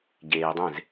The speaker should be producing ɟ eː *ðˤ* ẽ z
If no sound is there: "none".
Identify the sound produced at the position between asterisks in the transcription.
dˤ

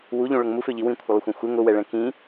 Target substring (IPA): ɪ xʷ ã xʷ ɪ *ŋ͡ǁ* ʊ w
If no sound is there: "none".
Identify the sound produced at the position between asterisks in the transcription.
ŋ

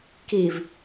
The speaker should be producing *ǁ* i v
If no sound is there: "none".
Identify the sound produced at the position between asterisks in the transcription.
k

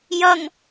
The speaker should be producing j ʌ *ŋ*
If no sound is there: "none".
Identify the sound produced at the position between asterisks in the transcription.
ŋ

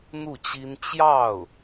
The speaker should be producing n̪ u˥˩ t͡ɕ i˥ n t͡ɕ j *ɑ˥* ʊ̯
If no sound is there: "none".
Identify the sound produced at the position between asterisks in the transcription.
ɑ˥˩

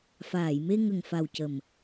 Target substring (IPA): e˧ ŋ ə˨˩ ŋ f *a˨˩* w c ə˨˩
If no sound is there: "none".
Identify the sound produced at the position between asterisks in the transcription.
a˨˩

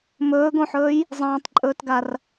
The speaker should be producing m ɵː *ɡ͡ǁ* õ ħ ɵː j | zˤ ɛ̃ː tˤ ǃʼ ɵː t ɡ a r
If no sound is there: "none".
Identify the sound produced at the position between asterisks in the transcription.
ɡ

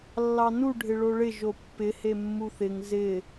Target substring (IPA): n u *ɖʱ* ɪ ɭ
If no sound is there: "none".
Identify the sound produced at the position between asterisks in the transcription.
ɖʱ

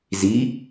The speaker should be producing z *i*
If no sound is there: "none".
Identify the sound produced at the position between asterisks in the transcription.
i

